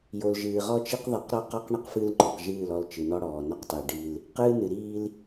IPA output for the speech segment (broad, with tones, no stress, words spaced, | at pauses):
jo˨lʒɨː˨ʁɔ˦t͡ʃi˦q ðˤi˨˦qɾɔ˦qɔ˦q ɳɨ˦qfɨ˦lŋ͡ǃɔ˨q ʒɨː˦˨lɔ˦˨l t͡ʃɨ˨nɔ˦ɽɔː˨nɔ˦q tˤi˨ɖi˦l | qɨː˦nɨ˨ ɾiː˦l